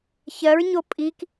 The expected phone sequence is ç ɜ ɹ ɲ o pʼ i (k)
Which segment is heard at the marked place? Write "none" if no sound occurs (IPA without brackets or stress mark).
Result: k